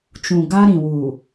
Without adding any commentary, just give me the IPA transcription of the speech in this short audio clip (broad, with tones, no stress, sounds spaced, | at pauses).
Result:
t͡ʃ ũ˨ ɡ a˦ ɾ ĩ˨ w u˨